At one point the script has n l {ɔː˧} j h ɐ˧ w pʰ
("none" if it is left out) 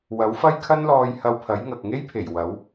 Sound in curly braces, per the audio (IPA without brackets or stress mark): ɔː˧